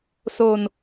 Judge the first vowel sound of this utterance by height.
mid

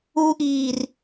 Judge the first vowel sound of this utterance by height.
high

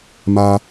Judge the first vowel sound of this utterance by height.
low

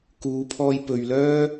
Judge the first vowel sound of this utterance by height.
high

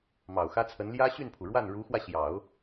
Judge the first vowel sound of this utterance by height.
low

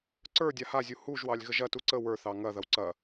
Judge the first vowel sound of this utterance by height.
mid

